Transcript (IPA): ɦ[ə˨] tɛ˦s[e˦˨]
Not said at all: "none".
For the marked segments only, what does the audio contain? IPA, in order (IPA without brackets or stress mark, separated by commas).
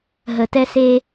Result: ə˨, e˦